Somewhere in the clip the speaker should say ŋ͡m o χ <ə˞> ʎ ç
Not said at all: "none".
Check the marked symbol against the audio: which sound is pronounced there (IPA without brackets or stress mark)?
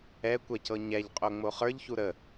ə˞